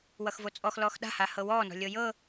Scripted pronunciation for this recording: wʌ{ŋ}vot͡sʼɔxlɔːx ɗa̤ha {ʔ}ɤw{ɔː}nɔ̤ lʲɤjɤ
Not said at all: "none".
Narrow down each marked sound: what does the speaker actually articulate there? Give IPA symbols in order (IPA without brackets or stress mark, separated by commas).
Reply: x, h, ɔː